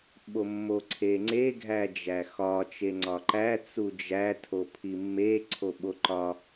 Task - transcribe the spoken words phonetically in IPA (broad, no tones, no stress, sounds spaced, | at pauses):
ɓ o mː o ǀʰ e ŋ͡ǀ e ɡʱ æ d͡ʒ æ x ɒ t͡ʃ e ŋ͡ǀ ɒ ǃ æ t͡s u d͡ʒ æ tʰ o pʰ i mː e ǀʰ o ɓ o ǃ ɒ